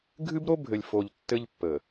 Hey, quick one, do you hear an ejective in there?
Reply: no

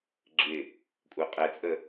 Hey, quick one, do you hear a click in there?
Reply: yes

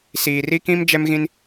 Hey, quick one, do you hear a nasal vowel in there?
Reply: yes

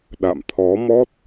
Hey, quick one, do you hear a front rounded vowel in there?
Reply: no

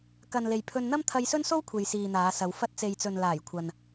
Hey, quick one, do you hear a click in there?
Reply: no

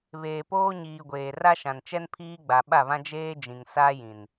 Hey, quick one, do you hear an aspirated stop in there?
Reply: yes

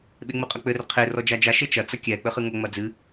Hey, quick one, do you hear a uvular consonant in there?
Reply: yes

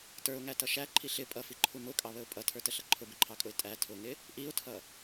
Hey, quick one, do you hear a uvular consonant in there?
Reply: no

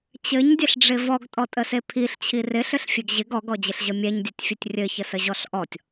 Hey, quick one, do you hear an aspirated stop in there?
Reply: yes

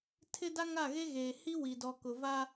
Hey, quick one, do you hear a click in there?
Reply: no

